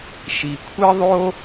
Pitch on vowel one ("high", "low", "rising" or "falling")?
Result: low